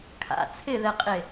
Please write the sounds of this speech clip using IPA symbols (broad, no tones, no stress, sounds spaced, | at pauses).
kʰ a̰ t͡sʰ ɪ ð ɛ qʼ e